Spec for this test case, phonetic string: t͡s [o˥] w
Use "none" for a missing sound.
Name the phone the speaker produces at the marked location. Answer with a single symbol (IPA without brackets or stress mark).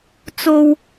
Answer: o˥